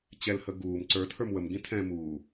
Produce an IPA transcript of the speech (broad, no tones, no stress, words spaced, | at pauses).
t͡ɕɛlhə ɡuːm ǀə˞tʰə˞m wəmɡĩ tʰɛ̃ muː